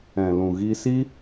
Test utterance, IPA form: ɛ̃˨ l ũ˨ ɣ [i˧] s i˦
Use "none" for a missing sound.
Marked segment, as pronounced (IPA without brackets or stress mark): i˧